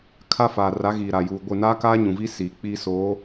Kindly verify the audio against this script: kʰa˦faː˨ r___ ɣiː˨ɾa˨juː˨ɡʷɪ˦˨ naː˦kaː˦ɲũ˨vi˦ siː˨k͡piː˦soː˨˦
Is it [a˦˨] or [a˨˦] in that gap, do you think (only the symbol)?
a˨˦